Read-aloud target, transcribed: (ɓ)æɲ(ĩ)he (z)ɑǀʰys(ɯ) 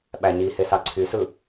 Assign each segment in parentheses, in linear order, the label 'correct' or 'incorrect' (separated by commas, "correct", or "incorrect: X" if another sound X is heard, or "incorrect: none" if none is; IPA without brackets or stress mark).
correct, incorrect: i, incorrect: s, correct